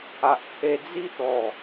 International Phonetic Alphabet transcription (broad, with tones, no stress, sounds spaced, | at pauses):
a˨ ʔ kʰ e˧ d͡z i˦ t̪ ɔ˨˩